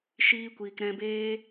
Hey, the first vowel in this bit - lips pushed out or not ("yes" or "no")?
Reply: no